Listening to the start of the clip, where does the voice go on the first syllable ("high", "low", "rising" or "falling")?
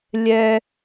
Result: high